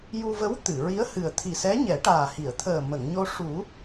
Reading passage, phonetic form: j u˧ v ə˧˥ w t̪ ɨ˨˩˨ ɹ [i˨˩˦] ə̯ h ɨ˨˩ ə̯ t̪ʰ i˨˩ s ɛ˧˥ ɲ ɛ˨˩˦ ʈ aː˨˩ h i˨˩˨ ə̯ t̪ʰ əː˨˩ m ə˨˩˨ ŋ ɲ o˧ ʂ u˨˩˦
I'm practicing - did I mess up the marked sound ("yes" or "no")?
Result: yes